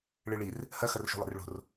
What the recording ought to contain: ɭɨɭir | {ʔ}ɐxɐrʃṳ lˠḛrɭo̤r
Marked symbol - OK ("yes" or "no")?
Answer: no